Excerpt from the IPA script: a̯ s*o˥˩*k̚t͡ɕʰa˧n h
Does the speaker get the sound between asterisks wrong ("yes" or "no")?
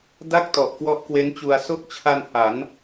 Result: no